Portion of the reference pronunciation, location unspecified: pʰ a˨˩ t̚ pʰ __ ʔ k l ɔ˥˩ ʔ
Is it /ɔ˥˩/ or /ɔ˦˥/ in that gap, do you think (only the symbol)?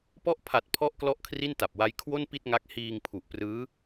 ɔ˦˥